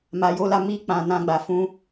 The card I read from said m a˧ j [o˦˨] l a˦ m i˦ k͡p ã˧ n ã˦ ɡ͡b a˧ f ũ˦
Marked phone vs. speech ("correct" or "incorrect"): incorrect